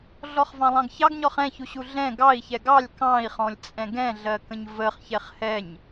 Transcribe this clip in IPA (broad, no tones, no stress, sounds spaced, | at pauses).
ɮ ɔ χ v ɑ̃ lˠ ɑ̃ ɡ ç ɑ ɡ ɲ ɔ χ ɛ̃ ç u ɕ u ɮ ɛ̃ ɡ ɑ i̯ ç ɛ ɡ ɑ lʲ k ɑ̃ i̯ χ ɔ̃ lʲ t͡sʼ ɛ̃ ɡ ɛ̃ ɮ ɜ k ə̃ ɲ v ə χ ç ɛ χ h ɛ ɲ